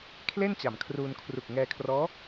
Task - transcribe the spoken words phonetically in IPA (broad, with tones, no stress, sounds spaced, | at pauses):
kʰ l e˥˩ n t͡ɕ a˩˦ m kʰ r uː˧ n kʰ r u˨˩ k̚ ŋ ɛː˧ kʰ r ɔː˦˥